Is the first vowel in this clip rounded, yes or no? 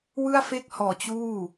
no